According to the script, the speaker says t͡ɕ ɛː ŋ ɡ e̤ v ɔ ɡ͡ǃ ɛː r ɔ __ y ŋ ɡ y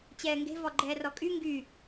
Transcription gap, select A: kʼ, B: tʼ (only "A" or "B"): A